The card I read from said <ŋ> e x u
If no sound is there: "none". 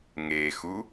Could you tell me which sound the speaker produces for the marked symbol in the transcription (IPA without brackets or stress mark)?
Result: ŋ